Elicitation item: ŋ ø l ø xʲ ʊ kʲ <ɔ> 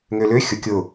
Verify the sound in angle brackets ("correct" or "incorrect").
incorrect